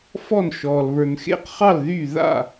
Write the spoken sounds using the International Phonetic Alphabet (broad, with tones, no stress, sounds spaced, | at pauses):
f ɔ˥˧ n ʃ ɔː˧ l β ə˞˧ n x ḛ˥˧ q χ ɑ˥˧ l ð y˥˧ ð a̰˥˧